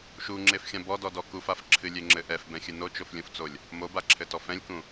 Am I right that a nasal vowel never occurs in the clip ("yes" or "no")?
no